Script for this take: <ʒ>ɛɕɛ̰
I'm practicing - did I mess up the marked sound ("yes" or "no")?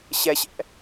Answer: yes